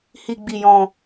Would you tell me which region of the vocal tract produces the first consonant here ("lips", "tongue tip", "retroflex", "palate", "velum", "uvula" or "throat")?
throat